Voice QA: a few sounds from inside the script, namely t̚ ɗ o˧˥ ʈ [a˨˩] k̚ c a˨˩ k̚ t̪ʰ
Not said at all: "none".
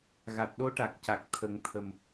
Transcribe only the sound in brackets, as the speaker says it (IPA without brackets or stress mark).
a˨˩